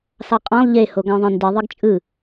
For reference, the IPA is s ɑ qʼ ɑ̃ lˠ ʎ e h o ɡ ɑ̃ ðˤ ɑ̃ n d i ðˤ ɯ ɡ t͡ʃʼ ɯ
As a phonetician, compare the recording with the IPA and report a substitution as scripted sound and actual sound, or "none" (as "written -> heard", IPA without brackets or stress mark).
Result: none